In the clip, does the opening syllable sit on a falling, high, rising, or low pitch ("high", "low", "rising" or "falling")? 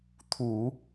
low